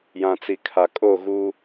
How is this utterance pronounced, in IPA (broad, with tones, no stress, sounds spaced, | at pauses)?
j ã˨ t͡s i˨ kʰ a˨ kʼ o˦˨ ɣ uː˦